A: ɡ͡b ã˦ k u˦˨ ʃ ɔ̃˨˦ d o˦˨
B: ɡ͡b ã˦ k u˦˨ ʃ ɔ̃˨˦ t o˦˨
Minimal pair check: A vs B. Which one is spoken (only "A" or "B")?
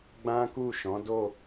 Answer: A